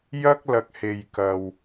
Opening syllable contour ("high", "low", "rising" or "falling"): high